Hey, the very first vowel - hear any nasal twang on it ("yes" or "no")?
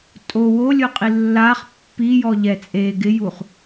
no